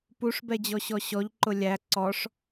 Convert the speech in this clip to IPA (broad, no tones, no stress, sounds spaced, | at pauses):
p u ʂ b ɛ d͡ʑ ɔ ɕ ɔ ɕ ɔ ʎ ǃ ʊ lʲ æ ǀ ɔ ʂ